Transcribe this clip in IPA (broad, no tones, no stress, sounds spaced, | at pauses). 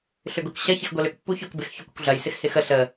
ɬ ʏ ɡ ʊ k ɕ ɐ ç ɪ x ɡʷ ɐ l ʏ k pː u ç ʊ k b ɪ x ç ʊ kʷ ə kʷ ɮ ɐ j s ɪ x h ɪ x ə ɬ ə